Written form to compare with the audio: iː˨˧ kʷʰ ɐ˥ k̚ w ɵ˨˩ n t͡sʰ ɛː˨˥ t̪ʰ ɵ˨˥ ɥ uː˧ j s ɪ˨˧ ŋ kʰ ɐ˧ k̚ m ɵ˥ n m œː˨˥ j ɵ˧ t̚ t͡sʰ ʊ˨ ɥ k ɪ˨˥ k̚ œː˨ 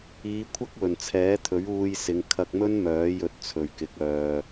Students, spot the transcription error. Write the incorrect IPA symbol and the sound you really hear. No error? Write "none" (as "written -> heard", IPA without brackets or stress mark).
ʊ˨ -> ɵ˨